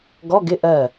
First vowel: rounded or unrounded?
rounded